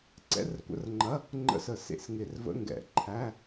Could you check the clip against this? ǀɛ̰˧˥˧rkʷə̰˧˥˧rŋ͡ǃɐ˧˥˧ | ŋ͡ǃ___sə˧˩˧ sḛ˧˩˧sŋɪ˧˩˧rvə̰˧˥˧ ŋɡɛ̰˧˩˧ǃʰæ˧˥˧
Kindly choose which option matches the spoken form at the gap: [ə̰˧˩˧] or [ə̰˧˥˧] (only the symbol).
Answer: ə̰˧˥˧